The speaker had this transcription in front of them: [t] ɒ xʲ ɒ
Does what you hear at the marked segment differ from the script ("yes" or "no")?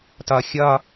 no